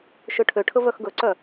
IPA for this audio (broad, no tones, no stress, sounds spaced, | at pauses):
ʃ ø ʈʰ ø ʈʰ ɵ v œ x ɡ ɵ ǀ œ